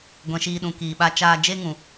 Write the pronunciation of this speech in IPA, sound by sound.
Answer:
ɡʷ ɛ̃˨ ʃ iː˧ ɗ ũ˨ k iː˨ ɓ a˧ t͡ʃ aː˧ d͡ʒ e˦ ŋ ũ˨

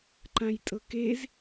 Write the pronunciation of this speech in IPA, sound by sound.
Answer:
ǃ ã j tʼ ɤ k e z

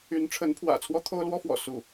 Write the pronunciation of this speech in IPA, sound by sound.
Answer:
y˧˥ n ʈ͡ʂʰ ə˧˥ n pʰ w ä̰˨˩ t͡sʰ w ɔ˥ t̪ʰ o˥ ʊ̯ l w ɔ˥ f w ɔ̰˨˩ s u˥˩

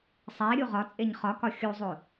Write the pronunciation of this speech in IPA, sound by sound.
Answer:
sˤ æ ɾʲ u ʁ ɒ t͡sʼ e ɲ χ ɒ k ɒ xʲ u zˤ o

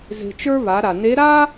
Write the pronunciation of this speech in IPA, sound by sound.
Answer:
z e̤˧ t͡ʃ ə˞˥ β a˩˧ ɾ a˩ n e˧˥ ɾ a˥

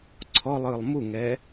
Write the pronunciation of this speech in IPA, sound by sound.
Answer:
ǀʰ ɔ lˠ ɯ lˠ m u ŋ ɛ

